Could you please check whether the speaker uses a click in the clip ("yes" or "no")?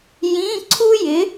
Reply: yes